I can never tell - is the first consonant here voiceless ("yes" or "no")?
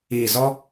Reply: no